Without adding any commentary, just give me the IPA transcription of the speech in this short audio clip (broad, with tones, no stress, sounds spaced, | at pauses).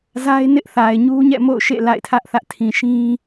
z a˦ ɪ̯ n ɪ˦ ʔ θ a˨ ɪ̯ ɲ u˦ ɲ ɛ̰˦˨ m o̰˦˨ ʊ̯ ʃ ḛ˦˨ l a̰˦˨ ɪ̯ tʰ ä˦ ʔ θ ä˦ ʔ tʰ ĩ˨ ʃ ĩ˦